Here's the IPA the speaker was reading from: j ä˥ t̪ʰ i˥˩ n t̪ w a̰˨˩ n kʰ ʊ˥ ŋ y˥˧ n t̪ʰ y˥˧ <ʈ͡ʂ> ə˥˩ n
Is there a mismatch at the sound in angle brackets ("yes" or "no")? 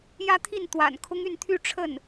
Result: yes